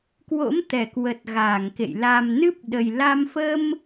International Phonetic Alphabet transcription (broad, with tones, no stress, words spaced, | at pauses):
kwo̰˧˥mt̪ɛ˧˩kwə˨˩t̚ ɣaː˧˩ŋkḛ˧˨j la˨˩mnɨ˦˥p̚ɗə˨˩jla˧m fə˧m